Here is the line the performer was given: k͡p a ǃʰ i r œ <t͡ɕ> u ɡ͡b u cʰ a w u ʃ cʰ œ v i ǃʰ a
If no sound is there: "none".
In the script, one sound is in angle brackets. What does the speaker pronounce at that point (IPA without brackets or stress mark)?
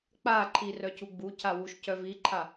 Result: cʰ